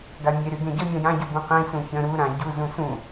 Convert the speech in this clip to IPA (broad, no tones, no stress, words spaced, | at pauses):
ɡamʲe ɾyɡẽɟə mʲãjã ɟubũqĩ sũçə̃ ɾu ɾãɟu zũsũ